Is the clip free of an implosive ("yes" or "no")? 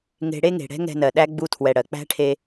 no